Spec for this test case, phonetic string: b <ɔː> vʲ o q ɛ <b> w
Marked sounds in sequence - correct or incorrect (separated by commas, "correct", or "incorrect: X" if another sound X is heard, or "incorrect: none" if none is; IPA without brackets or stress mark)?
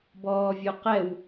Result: correct, incorrect: none